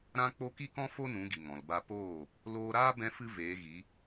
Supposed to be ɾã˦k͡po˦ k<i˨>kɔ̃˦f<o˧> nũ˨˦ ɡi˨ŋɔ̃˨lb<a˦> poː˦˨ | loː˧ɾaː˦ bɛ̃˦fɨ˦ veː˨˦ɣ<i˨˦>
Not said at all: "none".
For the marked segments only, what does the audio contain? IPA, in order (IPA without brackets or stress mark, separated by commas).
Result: i˦, o˦, a˦, i˨˦